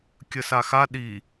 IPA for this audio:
kʲəsaxa ɗi

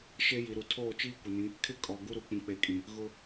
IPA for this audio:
ʃe˦ji˨ɾu˨ tʰoː˦˨t͡ʃiː˦kʷɪ˨nĩ˨˦ | kʰɪ˦ kʼɔ˨ ɡu˦ɾu˨ k͡pĩ˨k͡pe˨kʼĩ˨ | ɣʊ˦

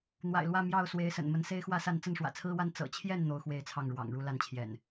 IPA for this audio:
n̪wa̰˨˩ɪ̯lwä˥˨ mjɑ˥˨ʊ̯ swe˨˦ɪ̯sə̰˨˩n mə˨˦nse˦ɪ̯xwä˥˨sa˥˨n t͡sə˥˨nʂwä̰˨˩t͡sʰɹ̩˦wa˦n t͡sɤ̰˨˩t͡ɕʰjɛ˥˨n n̪o˦ʊ̯xwe˥˨ɪ̯t͡sʰɑ˥˨ŋ ɻwɑ̰˨˩ŋ ɻu˦la˥˨nt͡ɕʰjɛ̰˨˩n

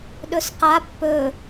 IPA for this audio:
ɗɵsqa pːɵ

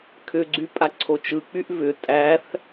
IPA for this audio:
kʰʏɡ͡ǀy pʼaǀʰot͡ʃɯk͡pyʔ vʏ tʼæθ

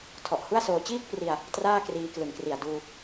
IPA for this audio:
tʰɔ˨˩ʔhu˥˩a̯soː˧ t͡ɕiː˥˩k̚pri˧a̯ | traː˥˩kriː˧klɯ˨˩ŋkri˨˩a̯ duː˧

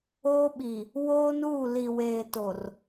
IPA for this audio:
oː˦ɓi˨ | woː˦nuː˦˨ li˨ weː˨to˨r

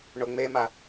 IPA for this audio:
ɳoŋ͡mema

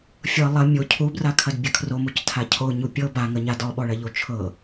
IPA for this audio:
fʲɤ lˠɐ mʲo cʰubrakʰɐd bʲɐkʰromuc tʰacʰo ɲupʲɤ baŋɐɲa dɔɓɔɭɐʎo t͡ʃʰɤ

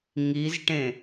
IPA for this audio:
ŋizʈẽ

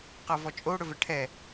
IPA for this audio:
qʌvɔt͡ʃʼo ɽɵvɛʈʰɛ

